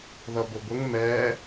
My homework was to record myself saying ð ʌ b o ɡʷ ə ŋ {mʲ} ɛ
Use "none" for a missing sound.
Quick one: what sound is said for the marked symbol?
m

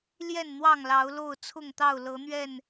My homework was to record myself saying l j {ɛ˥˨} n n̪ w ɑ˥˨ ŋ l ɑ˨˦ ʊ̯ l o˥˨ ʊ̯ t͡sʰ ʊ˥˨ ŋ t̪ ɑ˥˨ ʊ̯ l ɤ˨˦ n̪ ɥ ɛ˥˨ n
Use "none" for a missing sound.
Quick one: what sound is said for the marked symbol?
ɛ˥˨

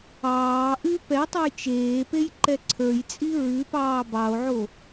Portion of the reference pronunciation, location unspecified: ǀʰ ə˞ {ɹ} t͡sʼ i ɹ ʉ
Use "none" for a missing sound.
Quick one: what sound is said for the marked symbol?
j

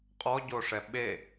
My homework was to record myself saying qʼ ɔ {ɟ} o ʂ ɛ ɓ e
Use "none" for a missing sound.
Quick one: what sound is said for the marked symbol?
ɟ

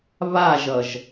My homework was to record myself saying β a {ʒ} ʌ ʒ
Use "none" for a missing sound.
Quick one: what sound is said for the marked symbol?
ʒ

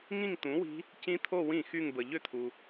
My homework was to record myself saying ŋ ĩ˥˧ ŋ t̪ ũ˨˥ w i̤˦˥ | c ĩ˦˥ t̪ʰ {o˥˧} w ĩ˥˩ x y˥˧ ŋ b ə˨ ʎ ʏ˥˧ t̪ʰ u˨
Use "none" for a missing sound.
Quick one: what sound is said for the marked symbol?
o˥˧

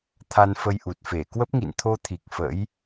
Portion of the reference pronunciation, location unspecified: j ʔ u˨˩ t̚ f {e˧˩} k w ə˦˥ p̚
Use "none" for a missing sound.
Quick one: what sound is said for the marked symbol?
e˧˩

